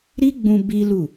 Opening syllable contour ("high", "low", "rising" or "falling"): high